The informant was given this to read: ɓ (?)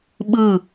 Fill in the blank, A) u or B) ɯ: B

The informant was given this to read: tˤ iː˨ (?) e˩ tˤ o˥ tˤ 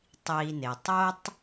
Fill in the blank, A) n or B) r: A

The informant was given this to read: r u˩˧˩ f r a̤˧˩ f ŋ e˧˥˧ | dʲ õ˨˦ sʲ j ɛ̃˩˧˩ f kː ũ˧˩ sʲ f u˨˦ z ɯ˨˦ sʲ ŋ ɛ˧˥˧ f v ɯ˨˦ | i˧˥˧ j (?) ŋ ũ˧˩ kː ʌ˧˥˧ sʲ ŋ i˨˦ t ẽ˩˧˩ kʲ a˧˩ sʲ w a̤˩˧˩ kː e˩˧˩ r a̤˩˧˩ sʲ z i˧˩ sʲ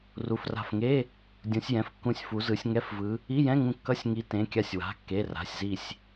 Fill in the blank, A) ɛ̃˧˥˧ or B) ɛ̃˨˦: A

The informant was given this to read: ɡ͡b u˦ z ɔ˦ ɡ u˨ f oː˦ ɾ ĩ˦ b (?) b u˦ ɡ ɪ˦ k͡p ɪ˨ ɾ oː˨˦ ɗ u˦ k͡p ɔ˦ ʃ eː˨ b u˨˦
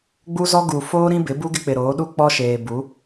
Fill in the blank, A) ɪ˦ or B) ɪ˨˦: B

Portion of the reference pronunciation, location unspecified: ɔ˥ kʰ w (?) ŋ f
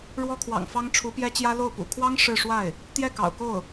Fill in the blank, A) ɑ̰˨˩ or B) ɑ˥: A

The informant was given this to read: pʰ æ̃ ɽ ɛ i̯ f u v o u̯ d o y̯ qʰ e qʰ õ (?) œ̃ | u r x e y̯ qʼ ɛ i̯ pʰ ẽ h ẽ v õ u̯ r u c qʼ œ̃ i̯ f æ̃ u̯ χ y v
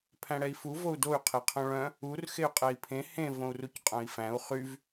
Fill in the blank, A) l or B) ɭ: B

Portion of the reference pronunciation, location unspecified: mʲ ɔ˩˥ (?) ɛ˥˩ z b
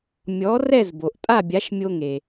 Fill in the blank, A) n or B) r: B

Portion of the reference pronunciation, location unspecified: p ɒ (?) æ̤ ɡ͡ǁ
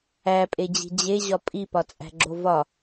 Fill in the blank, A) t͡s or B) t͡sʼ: B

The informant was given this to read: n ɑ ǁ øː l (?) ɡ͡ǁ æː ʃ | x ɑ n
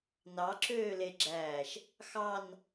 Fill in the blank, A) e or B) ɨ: A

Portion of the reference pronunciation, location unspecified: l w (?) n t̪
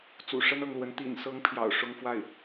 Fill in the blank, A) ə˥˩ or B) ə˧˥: B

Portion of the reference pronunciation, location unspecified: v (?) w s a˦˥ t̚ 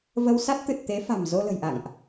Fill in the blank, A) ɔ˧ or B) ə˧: B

